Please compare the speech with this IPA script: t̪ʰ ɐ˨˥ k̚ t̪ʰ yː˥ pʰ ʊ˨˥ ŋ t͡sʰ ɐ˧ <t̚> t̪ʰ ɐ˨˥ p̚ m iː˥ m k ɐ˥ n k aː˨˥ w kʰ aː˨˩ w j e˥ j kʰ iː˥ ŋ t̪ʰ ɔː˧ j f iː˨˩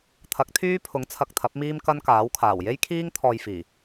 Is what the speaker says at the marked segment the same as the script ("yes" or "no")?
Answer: no